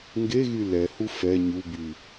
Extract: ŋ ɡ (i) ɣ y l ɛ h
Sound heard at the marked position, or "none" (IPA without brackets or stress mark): e